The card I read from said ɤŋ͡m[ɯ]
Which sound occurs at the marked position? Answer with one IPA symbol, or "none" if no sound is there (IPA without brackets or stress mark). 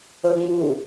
u